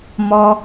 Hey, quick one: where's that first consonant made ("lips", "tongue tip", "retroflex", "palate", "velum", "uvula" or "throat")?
lips